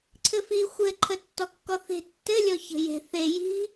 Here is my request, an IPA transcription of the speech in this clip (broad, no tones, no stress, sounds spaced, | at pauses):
ǀʰ ɘ f i xʷ ɘ ǃʰ ə tː ɔ kː ɔ θ e̤ tː ɘ lʲ ɔ ç ə̤ j e̤ θ e j i̤